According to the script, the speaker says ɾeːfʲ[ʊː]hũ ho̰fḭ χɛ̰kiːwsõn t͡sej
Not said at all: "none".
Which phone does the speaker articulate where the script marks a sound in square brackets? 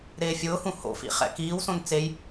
ʊː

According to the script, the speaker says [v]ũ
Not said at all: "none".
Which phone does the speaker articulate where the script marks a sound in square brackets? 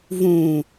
v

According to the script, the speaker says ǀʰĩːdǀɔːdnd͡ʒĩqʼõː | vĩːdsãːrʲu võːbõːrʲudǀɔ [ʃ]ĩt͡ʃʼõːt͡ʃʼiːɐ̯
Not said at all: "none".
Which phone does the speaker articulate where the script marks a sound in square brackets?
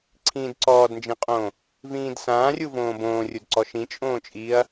ʃ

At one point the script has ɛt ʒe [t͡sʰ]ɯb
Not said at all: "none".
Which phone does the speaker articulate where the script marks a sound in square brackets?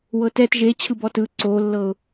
t͡ɕʰ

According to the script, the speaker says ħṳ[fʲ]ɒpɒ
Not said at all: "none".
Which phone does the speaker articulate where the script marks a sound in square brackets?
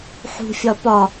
fʲ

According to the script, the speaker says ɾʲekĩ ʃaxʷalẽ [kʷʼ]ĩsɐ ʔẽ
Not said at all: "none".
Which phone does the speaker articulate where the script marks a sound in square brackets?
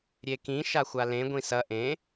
ɡʷ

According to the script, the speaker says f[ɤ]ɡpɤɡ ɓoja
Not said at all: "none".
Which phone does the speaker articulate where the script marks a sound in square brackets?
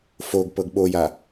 o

